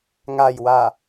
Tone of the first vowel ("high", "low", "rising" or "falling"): low